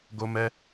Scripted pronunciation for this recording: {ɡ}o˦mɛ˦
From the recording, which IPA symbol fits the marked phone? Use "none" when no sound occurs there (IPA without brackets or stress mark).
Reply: ɡ